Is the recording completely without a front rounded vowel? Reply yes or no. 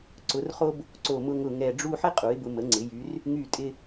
no